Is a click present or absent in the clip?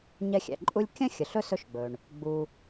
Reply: present